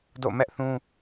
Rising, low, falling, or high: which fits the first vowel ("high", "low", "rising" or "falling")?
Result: falling